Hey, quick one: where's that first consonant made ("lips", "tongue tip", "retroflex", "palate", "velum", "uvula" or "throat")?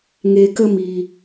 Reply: velum